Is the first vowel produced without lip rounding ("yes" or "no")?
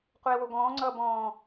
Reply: yes